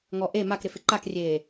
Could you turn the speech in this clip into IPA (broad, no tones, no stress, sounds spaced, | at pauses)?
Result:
ŋ ɔ ʔ e m a k ɾ ɪ f ɪ ǃ a k rʲ eː